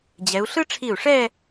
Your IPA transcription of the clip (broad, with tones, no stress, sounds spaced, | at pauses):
d͡ʑ ɛ˩˧ u̯ ɬ ɯ˥ ʈ͡ʂʰ i˧˩ u̯ ʂ ɛ˥˧